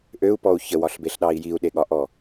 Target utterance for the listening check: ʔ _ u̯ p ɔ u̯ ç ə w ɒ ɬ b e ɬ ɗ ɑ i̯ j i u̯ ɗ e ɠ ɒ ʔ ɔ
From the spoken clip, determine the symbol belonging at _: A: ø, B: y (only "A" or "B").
A